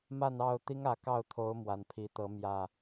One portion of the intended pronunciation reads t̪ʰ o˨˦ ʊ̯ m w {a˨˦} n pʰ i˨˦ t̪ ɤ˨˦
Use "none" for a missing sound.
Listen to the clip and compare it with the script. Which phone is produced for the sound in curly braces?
a˨˩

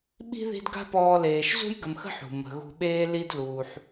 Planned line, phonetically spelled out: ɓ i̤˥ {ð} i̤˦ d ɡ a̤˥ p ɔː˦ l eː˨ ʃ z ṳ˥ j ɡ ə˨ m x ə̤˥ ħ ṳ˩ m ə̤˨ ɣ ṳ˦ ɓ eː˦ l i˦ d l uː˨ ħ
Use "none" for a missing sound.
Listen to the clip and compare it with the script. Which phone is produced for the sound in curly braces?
ð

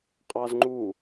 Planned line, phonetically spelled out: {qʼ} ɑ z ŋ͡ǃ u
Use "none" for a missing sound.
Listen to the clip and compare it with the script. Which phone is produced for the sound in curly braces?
qʼ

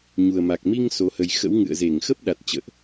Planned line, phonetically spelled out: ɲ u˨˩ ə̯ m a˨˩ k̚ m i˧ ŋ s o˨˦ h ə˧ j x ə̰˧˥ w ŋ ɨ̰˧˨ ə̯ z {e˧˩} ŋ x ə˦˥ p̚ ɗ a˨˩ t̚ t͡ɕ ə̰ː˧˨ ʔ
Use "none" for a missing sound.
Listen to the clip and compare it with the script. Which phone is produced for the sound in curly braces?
e˧˩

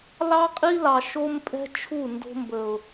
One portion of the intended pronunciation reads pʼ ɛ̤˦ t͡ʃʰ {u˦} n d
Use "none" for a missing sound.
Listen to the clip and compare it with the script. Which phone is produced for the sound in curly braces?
u˦˨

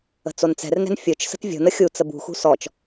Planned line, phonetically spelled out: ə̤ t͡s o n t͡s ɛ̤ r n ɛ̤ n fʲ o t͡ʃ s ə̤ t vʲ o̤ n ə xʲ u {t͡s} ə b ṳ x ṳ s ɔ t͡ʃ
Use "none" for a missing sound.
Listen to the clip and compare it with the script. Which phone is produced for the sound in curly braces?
t͡s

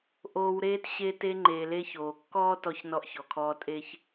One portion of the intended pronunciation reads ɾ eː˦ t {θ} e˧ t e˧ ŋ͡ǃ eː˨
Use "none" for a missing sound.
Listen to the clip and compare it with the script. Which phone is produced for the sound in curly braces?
ɕ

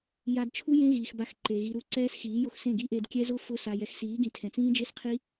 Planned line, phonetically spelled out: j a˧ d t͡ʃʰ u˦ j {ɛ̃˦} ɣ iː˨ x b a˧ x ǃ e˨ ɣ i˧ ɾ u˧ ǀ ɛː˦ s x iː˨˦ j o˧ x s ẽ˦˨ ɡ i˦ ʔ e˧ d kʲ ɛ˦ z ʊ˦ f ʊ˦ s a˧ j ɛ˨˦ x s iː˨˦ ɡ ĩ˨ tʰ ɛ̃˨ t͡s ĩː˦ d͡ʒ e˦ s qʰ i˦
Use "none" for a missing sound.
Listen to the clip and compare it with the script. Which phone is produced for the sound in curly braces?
ẽ˦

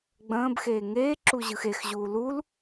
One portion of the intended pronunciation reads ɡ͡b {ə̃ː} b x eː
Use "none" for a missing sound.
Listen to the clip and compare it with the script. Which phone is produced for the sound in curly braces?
ə̃ː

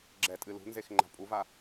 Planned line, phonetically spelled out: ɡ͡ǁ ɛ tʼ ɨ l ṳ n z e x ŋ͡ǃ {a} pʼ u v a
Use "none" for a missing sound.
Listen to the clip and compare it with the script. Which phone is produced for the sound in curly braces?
a̤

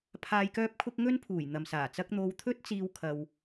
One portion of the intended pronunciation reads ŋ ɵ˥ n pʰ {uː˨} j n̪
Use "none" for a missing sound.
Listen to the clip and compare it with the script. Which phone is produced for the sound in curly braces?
uː˨˩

